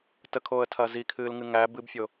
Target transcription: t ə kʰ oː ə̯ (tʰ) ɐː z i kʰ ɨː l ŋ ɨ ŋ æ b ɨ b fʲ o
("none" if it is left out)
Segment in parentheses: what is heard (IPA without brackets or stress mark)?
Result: tʰ